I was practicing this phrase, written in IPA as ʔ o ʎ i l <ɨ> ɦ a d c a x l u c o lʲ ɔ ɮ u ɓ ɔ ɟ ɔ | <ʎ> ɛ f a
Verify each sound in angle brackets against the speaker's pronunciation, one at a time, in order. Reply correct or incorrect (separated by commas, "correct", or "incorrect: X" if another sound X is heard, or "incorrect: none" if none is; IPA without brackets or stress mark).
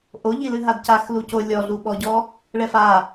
correct, incorrect: ɭ